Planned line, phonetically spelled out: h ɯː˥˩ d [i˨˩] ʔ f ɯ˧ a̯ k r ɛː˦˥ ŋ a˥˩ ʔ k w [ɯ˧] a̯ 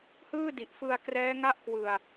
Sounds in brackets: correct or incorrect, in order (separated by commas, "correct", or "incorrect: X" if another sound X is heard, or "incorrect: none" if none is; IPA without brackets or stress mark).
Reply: correct, correct